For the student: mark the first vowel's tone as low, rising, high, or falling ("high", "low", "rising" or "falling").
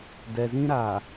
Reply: low